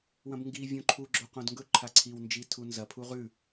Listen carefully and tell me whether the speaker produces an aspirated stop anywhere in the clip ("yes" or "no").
yes